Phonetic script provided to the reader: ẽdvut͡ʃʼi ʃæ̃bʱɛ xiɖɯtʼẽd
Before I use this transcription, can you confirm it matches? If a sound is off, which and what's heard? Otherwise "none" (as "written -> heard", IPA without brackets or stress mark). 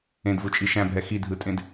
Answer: ɖ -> dʱ